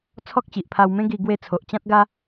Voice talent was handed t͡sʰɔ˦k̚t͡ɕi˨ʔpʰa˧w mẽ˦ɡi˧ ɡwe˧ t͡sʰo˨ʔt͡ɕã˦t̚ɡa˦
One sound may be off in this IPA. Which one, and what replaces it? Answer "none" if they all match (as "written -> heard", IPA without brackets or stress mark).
none